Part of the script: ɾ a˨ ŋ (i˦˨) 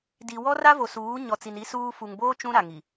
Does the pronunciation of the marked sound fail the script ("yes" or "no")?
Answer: yes